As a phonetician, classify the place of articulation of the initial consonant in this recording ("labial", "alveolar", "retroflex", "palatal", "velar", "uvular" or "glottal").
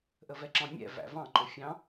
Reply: glottal